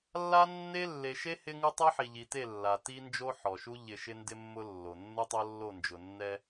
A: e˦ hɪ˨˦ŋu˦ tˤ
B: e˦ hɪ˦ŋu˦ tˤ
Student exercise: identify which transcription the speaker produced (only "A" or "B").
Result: B